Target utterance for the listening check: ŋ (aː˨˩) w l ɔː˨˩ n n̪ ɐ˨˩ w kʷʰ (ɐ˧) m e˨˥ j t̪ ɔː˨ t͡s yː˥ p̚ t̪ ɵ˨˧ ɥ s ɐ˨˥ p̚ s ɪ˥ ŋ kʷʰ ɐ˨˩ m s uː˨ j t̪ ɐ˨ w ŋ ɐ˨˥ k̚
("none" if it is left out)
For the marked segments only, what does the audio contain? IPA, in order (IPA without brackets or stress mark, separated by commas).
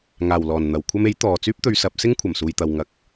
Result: aː˨˩, ɐ˧